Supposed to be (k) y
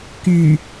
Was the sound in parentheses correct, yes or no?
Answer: yes